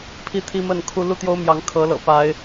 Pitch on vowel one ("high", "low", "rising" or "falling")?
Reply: falling